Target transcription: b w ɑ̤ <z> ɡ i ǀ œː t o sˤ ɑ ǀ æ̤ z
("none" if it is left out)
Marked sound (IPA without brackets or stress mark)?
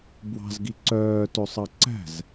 z